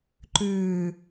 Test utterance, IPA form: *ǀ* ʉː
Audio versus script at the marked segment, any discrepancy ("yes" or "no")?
yes